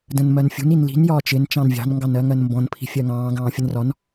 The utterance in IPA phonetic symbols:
d ə̃ n m ɜ n fʲ ṳ n i n l i̤ n j ɒː t͡ʃ ɪ n t͡ʃ ɑ̃ n vʲ ɑ̤ n ŋ ɡ ɑ n ɜ ŋ ɜ n m b ɔ̃ n pʰ i̤ fʲ ɜ ŋ ɑ̃ː ɡ ɑ̃ː fʲ ə n r ɒ n

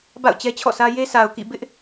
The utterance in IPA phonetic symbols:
b a̰˦˨ ʊ̯ t͡ɕ ɛ˦ t͡ɕʰ ɔ̰˦˨ s ä˦ j e˦ s a˨ ʊ̯ k ḭ˦˨ b ɪ˦ ʔ

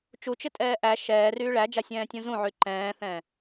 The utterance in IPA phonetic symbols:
t͡ʃ u t͡ʃ ɪ tʼ ɛː ʔ æ ʃ ɛː r yː ɭ æ d͡ʒ a sʲ ɛ̃ː tʲ ũ z ũ ʕ y ǃ ɛ̃ː θ ɛ̃

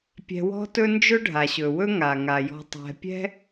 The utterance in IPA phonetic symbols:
pʲ ɛ̤˨ w ɔ̤˦ t ɵ˦ n d͡ʒ ɵ˥ ɖʱ a˩ ɕ ɵ˩ w ɵ˥ ŋ a˩ ŋ a˩ j ɔ̤˨ tˤ ɛ̤˨ pʲ ɛ̤˥

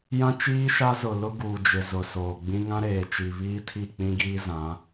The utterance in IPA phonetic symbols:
j ã˦ t͡ʃ iː˦ ʃ a˦ z ʊ˨ l ʊ˦ ɡ uː˨ d͡ʒ ɪ˨ z ʊ˨ s oː˨ ɡ͡b ĩ˦ ŋ ã˦ ɾ eː˨ t͡ʃ i˨ β iː˦ tʰ i˦˨ k͡p ĩ˦ ɡ iː˦ z ã˨˦

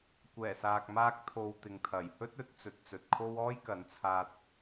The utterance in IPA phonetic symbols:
kʷ ɛː˨˩ s aː˨ k̚ m aː˧ k̚ t̪ʰ o˨ w t̪ ɪ˨ ŋ t̪ʰ ɐ˨˩ j h ɵ˥ t̚ ɵ˨˥ t̚ t͡s ɵ˨˥ t̚ t͡s ɵ˨ t̚ kʰ o˥ w ɔː˥ j k ɐ˨˥ n t͡sʰ aː˧ t̚

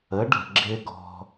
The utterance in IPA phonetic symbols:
ə˩˥ ɖ ə̤˩ ɡ͡ǁ ɪ˥ ɡ ɔ̤˧

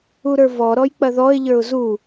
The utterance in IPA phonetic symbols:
u ɾ ə˞ v ɔ ɾ ɔ j k͡p ɐ ð ɔ ɪ̯ ʎ ə˞ ʊ̯ z u

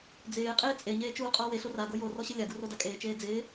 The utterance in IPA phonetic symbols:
d͡z ɪː qʼ ɪː t͡sʼ e ɲ eː t͡ʃ uː qʼ ɔ w e ɬ o r a ɡ o j o r ɔ ɕ ɪ lʲ a ɡ u r o d a kʼ eː t͡ʃ eː d͡z ɪː

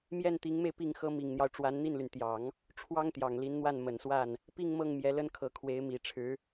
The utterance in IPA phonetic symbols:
m j ɛ˥˩ n t̪ i˧˥ ŋ m e˧ ɪ̯ p i˥˩ ŋ x ɤ˥ m i˨˩ ŋ n̪ j ɑ˦ ʊ̯ ʈ͡ʂ w a˧˥ n n̪ i˥˩ n l y˩ n t̪ j ɑ˨˩˦ ŋ | ʈ͡ʂʰ w ɑ˥ ŋ t̪ j ɑ˨˩ ŋ l i˧˥ n n̪ w a˥˩ n m ə˨˩ n s w a˥˩ n | p i˥˧ ŋ m ɤ˥˩ ŋ m j ɛ˧˥ l ə˥ n kʰ ɤ˧˥ kʰ w e˧˥ ɪ̯ m i˨˩ ʈ͡ʂʰ ɻ̩˧˥

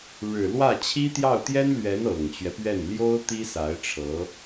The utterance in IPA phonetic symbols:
ɻ ɻ̩˨˩ l w ä˥˩ t͡ɕʰ i˥ t̪ j ɑ˥˩ ʊ̯ t̪ j ɛ˥ n l ɥ ɛ˧˥ n ɤ˨˩ ŋ t͡ɕ ɥ ɛ˦ p ɥ ɛ˥˩ n l j o˥ ʊ̯ t̪ i˥ s a˧˥ ɪ̯ ʈ͡ʂʰ ɤ˧˥

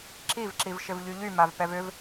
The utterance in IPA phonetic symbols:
ǁ i v ǁ i v ʃ ɪ v ʎ y ʎ y m a v p ɛ v ʏ v

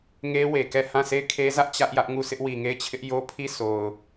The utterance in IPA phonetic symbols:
ŋ e˦ w e˨ k ɛ˦˨ h ã˦˨ sʰ e˦˨ ɪ̯ kʰ e˦ z ä˦ ʔ t͡ɕ ä˦ ʔ j ä˦ ʔ ŋ u˦˨ s ɪ˦ ʔ w i˨ ŋ e˦˨ ɪ̯ t͡ɕʰ ɪ˦ ʔ j o˦ pʰ i˦˨ s o˨ ʊ̯

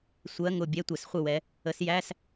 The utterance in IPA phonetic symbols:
sʷ ɜ˧˥˧ ŋ ʊ˥˩ bʲ ɛ˧˥˧ tʷ ɛ˧˩˧ s χʷ ɪ˥˩ w ɛ˨˦ | ə˨˦ s j æ˧˥˧ s

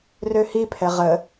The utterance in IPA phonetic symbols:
r ø h i pʰ ɛ ʁ ə

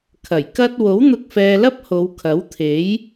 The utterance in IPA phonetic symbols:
kʰ ɐ˨˩ j k ɐ˥ t̚ w o˨˥ w n̪ ʊ˧ k̚ f ɛː˧ l ɐ˥ p̚ h o˨˧ w kʰ ɐ˨˥ w t̪ʰ e˨˥ j

